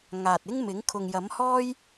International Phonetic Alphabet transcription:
ŋ aː˨ t̚ ɪ˥ ŋ m ɪ˨˥ ŋ kʰ ʊ˨ ŋ j ɐ˨˥ m h ɔː˥ j

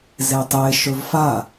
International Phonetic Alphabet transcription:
z e tˤ e ʃ ɵ v f a

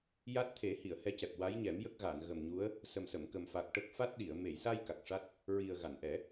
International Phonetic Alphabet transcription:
j a˦˥ t̚ t̪ʰ e˨˩˦ h i˨˩˨ ə̯ h ɛ˧˥ c ɛ˨˩ p̚ w a˧˥ j ɲ ɛ˨˩˦ m j ə˦˥ k̚ ɣ a˨˩˨ n ɣ ə˨˩ m ɲ u˧˥ ə̯ | s ə˨˩ m s ə˨˩˨ m k ə˨˩ m f a˨˩ k̚ ʈ ə˦˥ k̚ f a˦˥ t̚ ɗ i˨˩˨ ə̯ m e˨˩˨ j s a˧ j k a˨˩ k̚ ʂ a˦˥ t̚ | ɹ i˨˩ ə̯ ɣ a˨˩˨ n ʔ ɛ˨˩˦

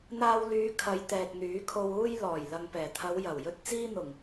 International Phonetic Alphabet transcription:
n̪ aː˧ w l yː˨˧ kʰ ɐ˨˧ j t̪ ɛː˨ k̚ n̪ yː˨˥ kʰ o˧ w uː˧ j l ɔː˨˩ j l ɐ˨ ŋ p ɛː˨˩ t̪ʰ ɐ˨˧ w j ɐ˨˩ w j ɵ˧ t̚ t͡s iː˧ n̪ ʊ˨˩ ŋ

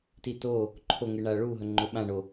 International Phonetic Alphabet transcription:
t i t o | ǃʰ o ŋ ɨ ɳ a ɭ u ɦ ɵ ŋ͡ǃ ɵ ɓ ã ɳ o

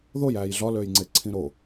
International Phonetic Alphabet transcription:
ð o j æː j ɮ ɒ l øː j ŋ͡ǀ e ǀʰ ĩ ɾ o

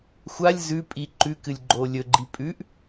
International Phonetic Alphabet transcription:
xʷ a lʲ z ʉ pʼ i ǃ ʉ k ɨ lʲ ɡ͡ǃ oː lʲ ɵ ɡ͡ǃ i pʼ ʉ ʔ

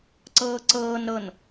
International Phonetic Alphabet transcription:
ǀ ɤː ǀ ɤː n ɾ ɤ n

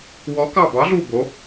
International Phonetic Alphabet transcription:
w ɔː˨˦ k ɑ˧˩ b ɑ˨˦ ɮ u˧˩ b o˨˦

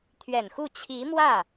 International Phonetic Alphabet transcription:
t̪ʰ ɥ ɛ˨˩ n x u˥˩ t͡ɕʰ i˧˥ m w ä˥˩

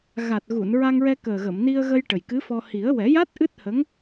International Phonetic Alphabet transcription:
ɣ a˨˩ t̚ ɣ u˨˩˨ n ɹ a˧ ŋ ɹ ɛ˧ k əː˨˩ ɣ ə˨˩˨ m n i˧ ə̯ ɣ ə˧ j ʈ ə˨˩ j k ɨ˧˥ f ɔ˧ h i˨˩˦ ə̯ w ɛ˨˩˦ j a˦˥ t̚ ʔ ɨ˦˥ t̚ h ə˧˥ ŋ

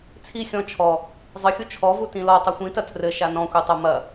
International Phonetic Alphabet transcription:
t͡sʰ i xʲ ɔ̃ t͡ʃʰ ɔ | zˤ ɨ xʲ u t͡ʃʰ ɔ v u t ĩ l ɔ tˤ u xʷ ĩ t ɐ tʰ r ɘ ʃ a n ɔ̃ xʷ e tˤ o m ɐ

